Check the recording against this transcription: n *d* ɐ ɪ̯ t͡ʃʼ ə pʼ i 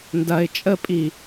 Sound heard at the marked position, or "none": d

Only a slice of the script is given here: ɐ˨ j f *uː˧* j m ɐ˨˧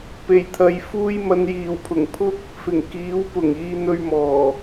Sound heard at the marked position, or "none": uː˧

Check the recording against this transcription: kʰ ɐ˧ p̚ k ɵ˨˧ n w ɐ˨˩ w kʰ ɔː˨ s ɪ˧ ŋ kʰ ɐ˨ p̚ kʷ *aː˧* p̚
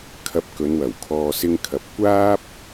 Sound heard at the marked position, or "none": aː˥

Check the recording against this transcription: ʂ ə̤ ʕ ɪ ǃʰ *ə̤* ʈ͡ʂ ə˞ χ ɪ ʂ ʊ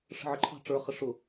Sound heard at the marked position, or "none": ɑ̤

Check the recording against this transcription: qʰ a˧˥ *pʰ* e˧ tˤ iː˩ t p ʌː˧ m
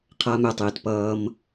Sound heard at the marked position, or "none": m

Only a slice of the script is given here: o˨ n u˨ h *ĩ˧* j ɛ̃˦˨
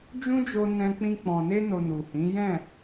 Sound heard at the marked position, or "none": ĩ˨˦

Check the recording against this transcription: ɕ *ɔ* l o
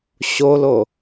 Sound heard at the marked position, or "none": o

